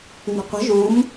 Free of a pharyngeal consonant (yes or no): yes